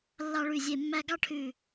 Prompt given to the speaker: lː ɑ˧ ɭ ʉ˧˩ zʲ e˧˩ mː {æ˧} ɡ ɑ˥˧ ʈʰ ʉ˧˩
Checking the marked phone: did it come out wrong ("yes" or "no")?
no